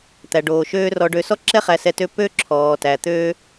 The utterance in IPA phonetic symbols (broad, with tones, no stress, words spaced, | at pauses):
t̪æ˩ɖoː˩ ʃøː˥rɔ˧ ɖø˧ sɔ˥ǁɛ˥ χæ˧sɛ˧tø˥ pø˥ǁʰɔː˩ tæ˩ t̪øː˥